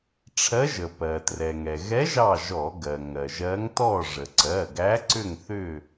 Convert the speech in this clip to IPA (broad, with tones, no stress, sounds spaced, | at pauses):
ʈ͡ʂʰ ɜ˧˥ ʒ ə˩ p ɜ˩ t r ɛ˩ ŋ ɛ˩ ɣ ɛ˧˥ ʒ ɑ˥˨ ʒ ɔ˧˩˧ ɡ ɜ˩ ŋ ɜ˩ ʒ ɜ˧˥ ŋ t ɔ˥˨ ʐ ə˩ ǀ ɜ˩˧˩ ɡ æ˧˥ ǀ ʏ˥˨ ŋ θ ʏ˥˨